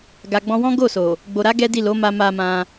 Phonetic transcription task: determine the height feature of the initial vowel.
low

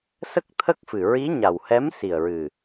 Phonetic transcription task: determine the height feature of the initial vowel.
mid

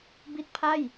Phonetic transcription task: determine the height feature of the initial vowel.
high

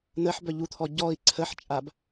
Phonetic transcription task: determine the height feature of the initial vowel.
mid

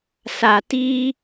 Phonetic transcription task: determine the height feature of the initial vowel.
low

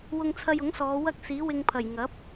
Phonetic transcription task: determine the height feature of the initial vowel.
high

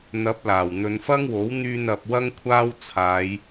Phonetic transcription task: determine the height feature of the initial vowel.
low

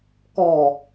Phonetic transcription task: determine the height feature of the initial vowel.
mid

